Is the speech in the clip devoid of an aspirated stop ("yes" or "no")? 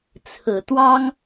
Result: no